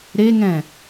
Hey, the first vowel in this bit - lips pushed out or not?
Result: no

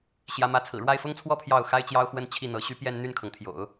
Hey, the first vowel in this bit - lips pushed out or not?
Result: no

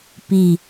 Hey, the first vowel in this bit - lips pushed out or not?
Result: no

